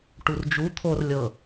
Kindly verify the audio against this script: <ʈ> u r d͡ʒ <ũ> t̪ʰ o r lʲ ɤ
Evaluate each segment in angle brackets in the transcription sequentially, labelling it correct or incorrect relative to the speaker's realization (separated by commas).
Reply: correct, incorrect